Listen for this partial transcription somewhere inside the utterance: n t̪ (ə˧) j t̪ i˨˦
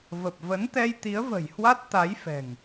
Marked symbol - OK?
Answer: no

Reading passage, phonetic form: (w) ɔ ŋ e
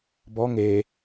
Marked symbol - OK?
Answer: no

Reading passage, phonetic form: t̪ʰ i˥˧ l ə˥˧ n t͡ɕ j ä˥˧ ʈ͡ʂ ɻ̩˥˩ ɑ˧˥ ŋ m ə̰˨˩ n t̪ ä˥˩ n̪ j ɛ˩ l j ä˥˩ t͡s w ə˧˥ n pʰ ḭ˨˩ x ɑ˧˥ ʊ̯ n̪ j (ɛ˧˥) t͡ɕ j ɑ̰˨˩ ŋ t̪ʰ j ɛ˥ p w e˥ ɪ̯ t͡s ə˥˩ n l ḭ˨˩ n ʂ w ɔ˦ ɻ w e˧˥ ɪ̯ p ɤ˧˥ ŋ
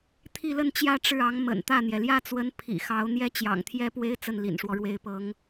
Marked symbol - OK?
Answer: no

